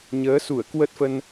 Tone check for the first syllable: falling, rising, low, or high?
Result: rising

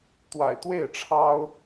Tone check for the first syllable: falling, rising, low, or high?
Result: low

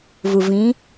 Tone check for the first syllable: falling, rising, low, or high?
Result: low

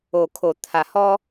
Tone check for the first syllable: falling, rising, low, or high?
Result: low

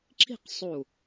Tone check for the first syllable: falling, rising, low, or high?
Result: falling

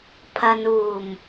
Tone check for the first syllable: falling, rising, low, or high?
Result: low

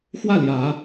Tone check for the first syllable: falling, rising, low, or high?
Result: falling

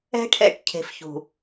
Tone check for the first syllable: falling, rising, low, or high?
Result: high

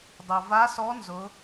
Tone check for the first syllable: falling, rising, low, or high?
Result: low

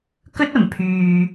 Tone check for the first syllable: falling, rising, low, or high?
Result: high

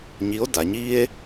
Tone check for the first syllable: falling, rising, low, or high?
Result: rising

